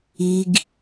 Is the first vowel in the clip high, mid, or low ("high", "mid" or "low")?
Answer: high